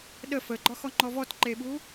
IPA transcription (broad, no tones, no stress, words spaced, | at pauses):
ɗə fəɡ͡ǃɒxɔŋ͡ǃɔ vɔtǃeɓu